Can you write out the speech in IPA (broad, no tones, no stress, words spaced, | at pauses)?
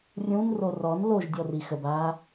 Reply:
rʲũn rorɔn loʒ dʲɔrixəbaː